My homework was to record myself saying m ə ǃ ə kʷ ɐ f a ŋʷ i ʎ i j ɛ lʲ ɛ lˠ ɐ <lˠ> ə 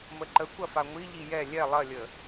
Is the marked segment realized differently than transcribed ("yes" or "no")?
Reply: yes